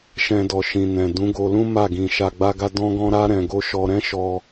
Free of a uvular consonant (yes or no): yes